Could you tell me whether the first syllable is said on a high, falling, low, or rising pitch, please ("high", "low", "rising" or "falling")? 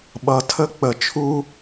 low